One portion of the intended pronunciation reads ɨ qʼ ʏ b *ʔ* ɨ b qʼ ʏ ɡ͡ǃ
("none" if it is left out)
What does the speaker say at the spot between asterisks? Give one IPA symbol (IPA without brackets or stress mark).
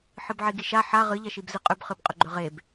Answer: χ